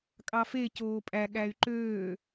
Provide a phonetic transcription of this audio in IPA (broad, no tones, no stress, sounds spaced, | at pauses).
kʼ ɑ f e c oː pʼ æ ɠ æ y̯ ǃ øː